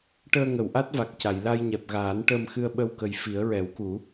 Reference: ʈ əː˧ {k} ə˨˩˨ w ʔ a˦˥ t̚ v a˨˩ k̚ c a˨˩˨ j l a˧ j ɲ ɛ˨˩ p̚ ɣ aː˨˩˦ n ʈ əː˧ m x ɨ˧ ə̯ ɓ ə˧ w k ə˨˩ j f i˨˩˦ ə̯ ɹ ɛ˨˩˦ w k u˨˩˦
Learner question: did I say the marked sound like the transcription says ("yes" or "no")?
no